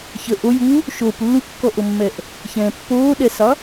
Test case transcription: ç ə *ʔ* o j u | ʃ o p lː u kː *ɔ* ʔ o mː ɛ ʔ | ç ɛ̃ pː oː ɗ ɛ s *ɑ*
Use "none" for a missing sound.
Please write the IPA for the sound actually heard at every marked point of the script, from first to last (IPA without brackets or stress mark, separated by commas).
ʔ, ɔ, ɑ